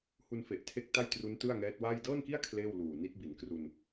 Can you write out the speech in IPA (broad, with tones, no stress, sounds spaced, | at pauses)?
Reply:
h u˧ n f e˨˩ ʔ tʰ e˦˥ k̚ t a˥˩ j t r u˦˥ n t ɯ˥˩ a̯ ŋ ɛː˦˥ t̚ w aː˥˩ j d ɤː˥˩ n k i˥˩ a̯ kʰ l eː˥˩ w l uː˨˩ n i˦˥ t̚ b i˩˦ n k r u˧ n